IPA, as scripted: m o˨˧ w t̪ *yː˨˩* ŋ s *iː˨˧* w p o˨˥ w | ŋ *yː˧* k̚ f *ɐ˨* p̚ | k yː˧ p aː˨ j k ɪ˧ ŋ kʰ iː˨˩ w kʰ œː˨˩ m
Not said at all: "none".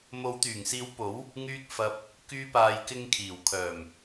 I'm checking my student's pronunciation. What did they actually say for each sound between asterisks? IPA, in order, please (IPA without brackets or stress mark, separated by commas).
yː˨˩, iː˨˥, yː˧, ɐ˧